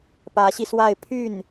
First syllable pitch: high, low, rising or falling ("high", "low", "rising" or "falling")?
rising